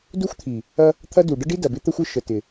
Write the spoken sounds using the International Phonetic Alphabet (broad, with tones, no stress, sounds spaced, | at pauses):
d u˦ xʷ t̪ʰ i˨ | ɐ˦ | t̪ʰ ɐ˦ d u˨ ɖ ə˦ ɖ i˦ d ɐ˨ b ɪ˦ t̪ ə˦ xʷ ɪ˦ ʃ ə˨ t ɪ˨